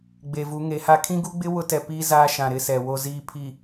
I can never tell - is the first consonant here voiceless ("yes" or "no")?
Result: no